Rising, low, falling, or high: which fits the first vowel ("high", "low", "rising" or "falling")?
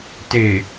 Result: low